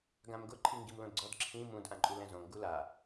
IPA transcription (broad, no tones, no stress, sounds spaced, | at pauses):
ɡ ã m ɡ ʊ ǃʰ i ŋ ɡ i m l õ d ɡ͡ǀ ɔ d ǁʰ ĩ m ũ d ʔ ã ǃʼ u l ɛ̃ z õ ŋ ɡ u l a